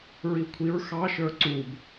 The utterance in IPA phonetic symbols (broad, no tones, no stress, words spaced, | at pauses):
ɹikʷʰiɹ xɑʃə˞ ǀub